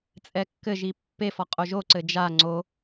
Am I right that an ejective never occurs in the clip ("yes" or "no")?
no